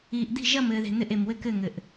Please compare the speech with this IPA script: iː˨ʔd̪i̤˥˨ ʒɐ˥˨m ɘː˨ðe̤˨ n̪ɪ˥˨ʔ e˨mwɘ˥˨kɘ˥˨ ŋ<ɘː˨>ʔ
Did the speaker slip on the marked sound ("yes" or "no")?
yes